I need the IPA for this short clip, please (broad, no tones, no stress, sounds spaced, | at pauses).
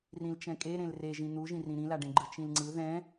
r ĩ l t͡ʃ ɛ̃ kʼ e ɾ ẽ l r e ʒ ĩ n̪ u ʒ ĩ r ĩ ɾ ĩ l a ɖ ẽ ɡ͡ǃ ɯ t͡ʃ ĩ l ŋ͡ǀ ɯ ð ɛ̃